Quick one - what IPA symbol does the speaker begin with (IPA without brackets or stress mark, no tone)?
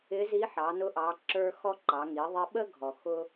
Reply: ɪ